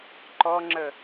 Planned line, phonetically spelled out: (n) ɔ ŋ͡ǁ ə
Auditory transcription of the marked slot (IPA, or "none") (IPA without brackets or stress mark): ǃ